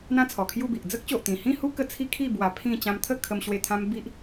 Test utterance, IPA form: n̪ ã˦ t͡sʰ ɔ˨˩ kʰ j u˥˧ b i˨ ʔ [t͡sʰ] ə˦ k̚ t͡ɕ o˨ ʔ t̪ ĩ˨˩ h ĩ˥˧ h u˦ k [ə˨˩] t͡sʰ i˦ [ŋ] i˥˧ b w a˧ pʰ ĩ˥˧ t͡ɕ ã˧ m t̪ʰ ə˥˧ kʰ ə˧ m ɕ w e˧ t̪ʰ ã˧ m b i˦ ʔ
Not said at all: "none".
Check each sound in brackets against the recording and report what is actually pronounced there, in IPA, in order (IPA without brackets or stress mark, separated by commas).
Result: d͡z, ə˧, kʰ